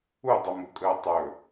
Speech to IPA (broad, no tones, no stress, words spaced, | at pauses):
udˤɛmukʼəː tˤɵ